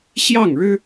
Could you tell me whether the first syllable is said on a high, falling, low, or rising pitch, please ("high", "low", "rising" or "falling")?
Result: falling